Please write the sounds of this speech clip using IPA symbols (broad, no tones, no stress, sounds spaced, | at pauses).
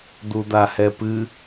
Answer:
d̪ u d̪ a h ɛ p ɨ